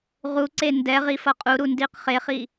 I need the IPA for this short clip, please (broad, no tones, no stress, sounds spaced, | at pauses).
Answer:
ʁ u ǀ e n d ɛ ʁ i f ʌ qʼ u ɾ u n d i q χ e χ i